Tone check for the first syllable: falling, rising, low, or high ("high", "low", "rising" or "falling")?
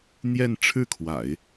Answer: falling